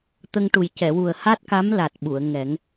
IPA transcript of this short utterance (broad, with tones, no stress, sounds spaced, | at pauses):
t̪ ə˧ ŋ ʈ u˨˩ j c ɛ˨˩˨ w u˨˩ ə̯ h a˦˥ t̚ k a˧˥ m l a˨˩ t̚ ɓ u˨˩˨ ə̯ ŋ ɛ˨˩˦ ŋ